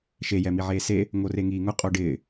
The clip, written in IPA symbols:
ʃe jɛmiʕeːse | ŋoreŋiːŋʊ qʼoɖɪː

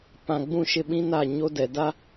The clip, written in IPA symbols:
pã˨ ɡ͡bũ˦˨ʃɪ˦ɓĩ˦na˦˨ ɲo˦dɛ˨da˦

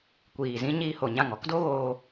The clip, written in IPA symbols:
kʷiː˨zĩ˦ ɲiː˧ho˨ɲã˦˨ŋ ɔ˦kdo˦ɣoː˧

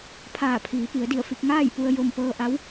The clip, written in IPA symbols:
pʰaː˧˩pʰiː˩˧pi˩˧ə̯di˧˩ə̯ fi˧k̚ ŋaː˥˨jpu˧ə̯ jo˧m pɤː˧ʔa˧˥w

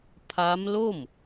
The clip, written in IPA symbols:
pʰa˦˥mlo˥˩m

